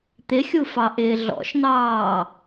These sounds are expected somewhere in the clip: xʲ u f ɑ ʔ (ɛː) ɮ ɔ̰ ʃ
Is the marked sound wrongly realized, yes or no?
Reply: yes